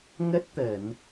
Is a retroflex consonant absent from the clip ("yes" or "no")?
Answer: yes